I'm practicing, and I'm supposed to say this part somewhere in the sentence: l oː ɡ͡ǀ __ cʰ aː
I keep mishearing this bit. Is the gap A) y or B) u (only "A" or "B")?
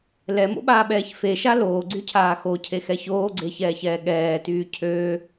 A